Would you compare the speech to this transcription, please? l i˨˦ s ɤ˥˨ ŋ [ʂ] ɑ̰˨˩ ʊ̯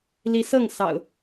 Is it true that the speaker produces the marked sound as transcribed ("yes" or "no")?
no